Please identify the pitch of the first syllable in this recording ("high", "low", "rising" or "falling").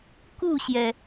falling